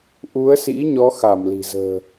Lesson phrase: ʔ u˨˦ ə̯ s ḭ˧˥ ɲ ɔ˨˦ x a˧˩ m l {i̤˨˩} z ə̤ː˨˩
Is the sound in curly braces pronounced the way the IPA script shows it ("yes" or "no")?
yes